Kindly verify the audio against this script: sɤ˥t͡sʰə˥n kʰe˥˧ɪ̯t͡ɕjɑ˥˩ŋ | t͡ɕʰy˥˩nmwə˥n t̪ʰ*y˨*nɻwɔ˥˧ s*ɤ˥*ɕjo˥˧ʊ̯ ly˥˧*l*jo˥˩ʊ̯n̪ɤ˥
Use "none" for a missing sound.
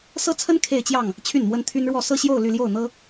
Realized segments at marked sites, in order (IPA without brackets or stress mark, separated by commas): y˥, ɤ˥˧, l